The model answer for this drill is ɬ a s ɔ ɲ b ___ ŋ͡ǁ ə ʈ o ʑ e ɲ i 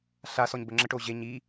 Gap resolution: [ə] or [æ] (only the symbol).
ə